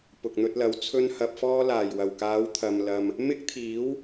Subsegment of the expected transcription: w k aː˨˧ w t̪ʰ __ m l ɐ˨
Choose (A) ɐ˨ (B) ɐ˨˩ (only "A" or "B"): A